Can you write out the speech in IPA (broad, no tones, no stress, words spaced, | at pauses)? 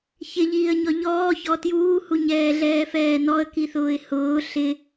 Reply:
çɪʎiːə̯ɲɔ ʎɔːçɔ tjuːhu ɲɛːɮɛːfɛːnɔə̯ kiθʊːɪ̯hʊː ɬɪ